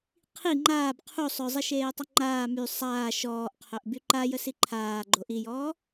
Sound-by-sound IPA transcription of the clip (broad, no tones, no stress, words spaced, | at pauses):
qʰi ŋ͡ǃaːb qʰu sˤœzˤiʃeːtˤœ ŋ͡ǃaː my sˤaː ʃɔːʔqʰœʔ byǃajə siǃʰaː ɡ͡ǃoʔijɔː